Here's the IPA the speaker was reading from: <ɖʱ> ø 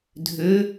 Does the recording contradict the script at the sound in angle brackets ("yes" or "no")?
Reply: yes